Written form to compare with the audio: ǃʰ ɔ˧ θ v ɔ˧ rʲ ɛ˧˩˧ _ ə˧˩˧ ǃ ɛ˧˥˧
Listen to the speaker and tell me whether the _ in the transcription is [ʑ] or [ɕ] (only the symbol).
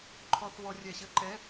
ɕ